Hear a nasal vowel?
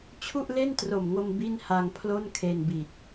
no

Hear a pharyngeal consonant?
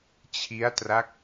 no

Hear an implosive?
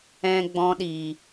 yes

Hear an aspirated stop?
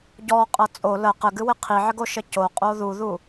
yes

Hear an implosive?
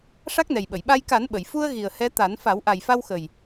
yes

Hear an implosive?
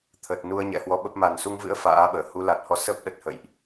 yes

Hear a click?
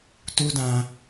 no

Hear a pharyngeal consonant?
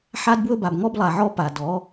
yes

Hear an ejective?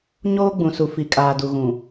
yes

